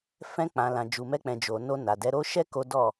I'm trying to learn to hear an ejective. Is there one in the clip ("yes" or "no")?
no